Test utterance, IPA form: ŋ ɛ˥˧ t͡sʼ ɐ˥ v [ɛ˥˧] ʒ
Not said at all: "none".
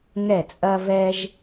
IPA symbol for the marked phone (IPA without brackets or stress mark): ɛ˥